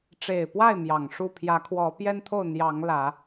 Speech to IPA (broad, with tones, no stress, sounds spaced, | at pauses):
ʈ͡ʂ e˨˩ ɪ̯ p w a˥˨ ɪ̯ m j ɑ˨˩ ŋ ʂ u˥˨ pʰ j ä˨˦ kʰ w ɔ˨˦ p j ɛ˦ n t̪ʰ o˥˨ ʊ̯ n̪ j ɑ˨˦ ŋ l ä˨˦